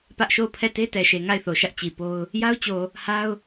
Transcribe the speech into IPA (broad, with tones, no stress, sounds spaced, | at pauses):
p ä˦ ʔ ʃ o˦˨ ʊ̯ pʰ ɛ˦˨ t e˦ t ɛ˨ ʃ e˨ ŋ a˦˨ ɪ̯ θ o˨ ʃ ä˦ ʔ t͡ɕ i˨ p o˦ ʊ̯ | j a˦ ʊ̯ t͡ɕ o˨ | h a˦ ʊ̯